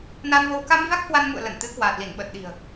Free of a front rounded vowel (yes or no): yes